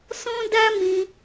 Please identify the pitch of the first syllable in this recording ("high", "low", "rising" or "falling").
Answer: high